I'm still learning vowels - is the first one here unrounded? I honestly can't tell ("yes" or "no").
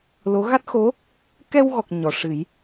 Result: no